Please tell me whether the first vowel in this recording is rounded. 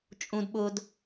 yes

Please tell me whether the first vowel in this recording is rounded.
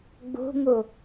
yes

